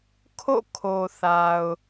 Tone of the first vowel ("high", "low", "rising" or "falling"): falling